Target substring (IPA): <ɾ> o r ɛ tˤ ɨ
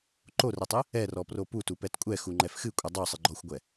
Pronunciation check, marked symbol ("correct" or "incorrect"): incorrect